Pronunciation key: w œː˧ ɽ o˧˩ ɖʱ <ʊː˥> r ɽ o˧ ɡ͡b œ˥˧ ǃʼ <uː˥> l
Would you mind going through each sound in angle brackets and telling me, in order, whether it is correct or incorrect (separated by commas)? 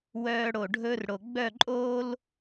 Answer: incorrect, incorrect